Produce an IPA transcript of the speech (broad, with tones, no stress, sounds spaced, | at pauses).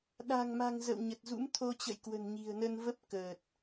ɗ a̤˨˩ ŋ m a̤˨˩ ŋ z ə̰˧˨ w ɲ ə˨˩ t̚ z ṵ˧˥ m t̪ʰ o˧ t͡ɕ ə̰˧˨ j k w ə̤˨˩ n ɲ i̤˨˩ ə̯ n ə˧ n v ə˦˥ p̚ k əː˨˩ t̚